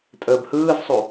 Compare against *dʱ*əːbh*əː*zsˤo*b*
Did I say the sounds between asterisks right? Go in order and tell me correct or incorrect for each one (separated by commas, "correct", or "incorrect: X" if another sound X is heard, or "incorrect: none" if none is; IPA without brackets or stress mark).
incorrect: tʼ, incorrect: ɯː, incorrect: none